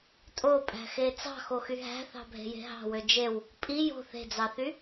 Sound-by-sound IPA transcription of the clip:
tʼ o pʼ æ̤ x e t͡s ɑ̤ x o x y ɦ æ̤ θ ɑ̤ bʱ e̤ j e̤ ɦ ɑ̤ w ø d͡ʒ e w | pʼ i j o̤ θ e̤ d͡z ɑ θ y

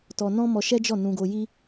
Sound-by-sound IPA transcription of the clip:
t ɔ˧ n ɔ̃˦ m ɔ˧ ʃ ɛ˦ d͡ʒ ɔ˦˨ n ũ˧ ɡ o˧ j i˦

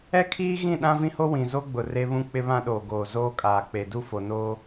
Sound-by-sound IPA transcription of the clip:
ɛ˦ kʰ iː˦ ɣ ĩ˦˨ ɗ ã˦ v ĩ˦ h o˦ w ĩ˨ z o˦ ɡ͡b ʊ˨ r e˦ β ũ˦ k͡p ɪ˦ β ã˦ ɗ oː˨ ɡ oː˨ z oː˦ kʼ aː˨ k͡p e˨ d u˦ f o˨ n oː˦

